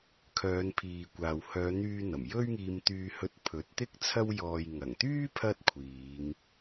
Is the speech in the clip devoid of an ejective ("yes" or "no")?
yes